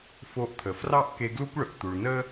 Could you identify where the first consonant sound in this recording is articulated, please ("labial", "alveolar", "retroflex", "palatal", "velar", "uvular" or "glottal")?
labial